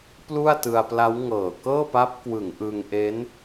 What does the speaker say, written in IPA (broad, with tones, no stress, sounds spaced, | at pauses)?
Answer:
p l u˥˩ a̯ t ɯ˧ a̯ p l a˦˥ w ŋ ɤː˨˩ k ɤː˥˩ p a˦˥ p̚ k w ɯ˩˦ ŋ ʔ ɯ˧ ŋ ʔ e˦˥ n